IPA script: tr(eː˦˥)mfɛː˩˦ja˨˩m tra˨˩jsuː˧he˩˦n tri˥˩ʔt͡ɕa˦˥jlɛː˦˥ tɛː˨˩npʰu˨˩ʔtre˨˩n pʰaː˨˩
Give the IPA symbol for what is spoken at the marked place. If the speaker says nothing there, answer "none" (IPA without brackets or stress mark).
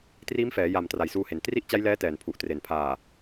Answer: iː˦˥